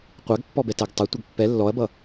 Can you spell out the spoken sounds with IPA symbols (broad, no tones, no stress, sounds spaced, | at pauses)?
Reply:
qʷ æ ɡ pː ɔ b ɛ t æ ɡ tˤ ə tʷ ʌ ɡ pː ɛ lː ɔ ɐ̯ b ʌ